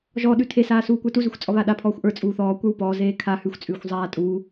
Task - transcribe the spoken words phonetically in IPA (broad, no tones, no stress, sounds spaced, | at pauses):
ʒ ɔ ɗ ʉ tʰ e s aː s uː kʷ ə˞ t u z ʉ xʷ t͡sʼ ɔ β a ɗ a pʰ ɔː xʷ ʔ ə˞ t͡sʼ uː θ ɔː kʷ ə˞ w p ɔː z eː kʰ a h ʉ xʷ t͡sʼ ʉː xʷ zˤ aː tʼ uː